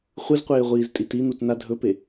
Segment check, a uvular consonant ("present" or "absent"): present